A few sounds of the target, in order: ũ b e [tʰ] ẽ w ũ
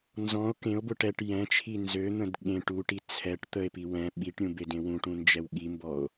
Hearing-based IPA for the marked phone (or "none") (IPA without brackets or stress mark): d